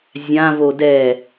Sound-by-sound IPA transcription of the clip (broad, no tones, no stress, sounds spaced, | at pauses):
zʲ ã v o d ɛ